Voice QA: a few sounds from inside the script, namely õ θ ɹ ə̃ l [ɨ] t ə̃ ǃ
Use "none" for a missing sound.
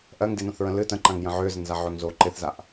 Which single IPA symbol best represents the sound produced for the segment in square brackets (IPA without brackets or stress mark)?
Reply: ɨ